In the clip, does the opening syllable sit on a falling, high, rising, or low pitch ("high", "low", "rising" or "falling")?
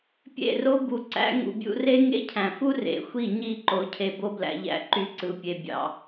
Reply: falling